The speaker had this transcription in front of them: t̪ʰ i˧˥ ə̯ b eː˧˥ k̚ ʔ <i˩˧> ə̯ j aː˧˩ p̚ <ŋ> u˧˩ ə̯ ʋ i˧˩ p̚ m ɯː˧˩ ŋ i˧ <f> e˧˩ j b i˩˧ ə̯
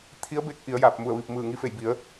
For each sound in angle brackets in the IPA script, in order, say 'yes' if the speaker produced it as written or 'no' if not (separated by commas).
yes, no, yes